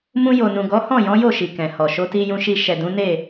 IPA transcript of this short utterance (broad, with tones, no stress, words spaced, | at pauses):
mũ˧jo˨nũ˨ ɡɔ˨˦hɔ̃˦˨jɔ̃˨˦jo˦˨ ʃi˨kɛ̃˨hɔ˨ ʃo˨˦ti˧jũ˧ʃi˧ ʃɛ˨dũ˨˦ne˦˨